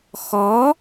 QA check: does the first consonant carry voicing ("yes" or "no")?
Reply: no